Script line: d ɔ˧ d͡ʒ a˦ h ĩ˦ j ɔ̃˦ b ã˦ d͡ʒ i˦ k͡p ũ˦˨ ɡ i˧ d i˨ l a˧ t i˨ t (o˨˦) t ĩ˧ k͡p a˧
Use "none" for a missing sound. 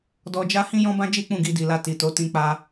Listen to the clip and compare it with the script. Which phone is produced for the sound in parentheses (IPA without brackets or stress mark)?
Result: o˨˦